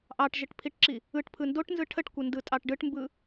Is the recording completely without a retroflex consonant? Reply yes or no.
no